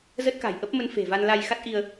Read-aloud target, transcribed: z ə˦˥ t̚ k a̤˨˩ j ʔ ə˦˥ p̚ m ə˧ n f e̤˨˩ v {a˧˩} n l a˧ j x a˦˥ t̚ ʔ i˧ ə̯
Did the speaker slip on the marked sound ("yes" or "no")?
yes